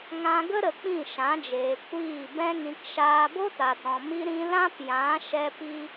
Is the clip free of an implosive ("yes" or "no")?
yes